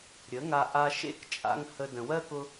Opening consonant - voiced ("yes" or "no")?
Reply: yes